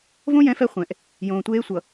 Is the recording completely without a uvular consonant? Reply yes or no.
no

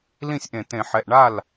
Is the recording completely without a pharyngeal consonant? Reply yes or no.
no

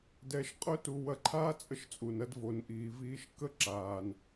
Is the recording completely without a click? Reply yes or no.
no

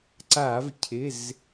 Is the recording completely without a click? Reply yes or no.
no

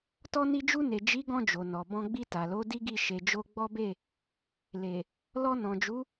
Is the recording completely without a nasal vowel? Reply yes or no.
no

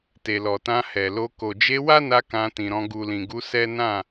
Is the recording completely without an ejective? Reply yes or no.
yes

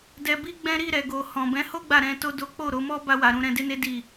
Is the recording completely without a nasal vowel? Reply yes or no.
no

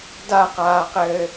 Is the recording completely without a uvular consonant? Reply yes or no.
no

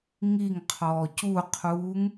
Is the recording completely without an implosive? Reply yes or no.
yes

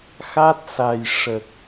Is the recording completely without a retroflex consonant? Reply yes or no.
no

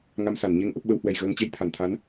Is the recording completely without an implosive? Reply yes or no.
no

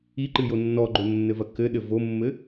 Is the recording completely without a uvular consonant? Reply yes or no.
yes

